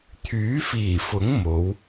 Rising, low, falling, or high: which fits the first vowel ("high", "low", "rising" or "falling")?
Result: rising